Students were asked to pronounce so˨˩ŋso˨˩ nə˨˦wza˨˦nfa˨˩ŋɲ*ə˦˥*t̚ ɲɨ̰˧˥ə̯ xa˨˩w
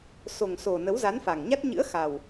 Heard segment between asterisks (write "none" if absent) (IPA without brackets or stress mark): a˦˥